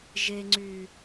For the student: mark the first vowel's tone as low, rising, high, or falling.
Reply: low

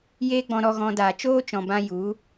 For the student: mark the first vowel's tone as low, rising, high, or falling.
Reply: high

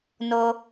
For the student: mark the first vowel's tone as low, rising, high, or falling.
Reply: high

